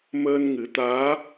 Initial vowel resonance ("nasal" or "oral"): oral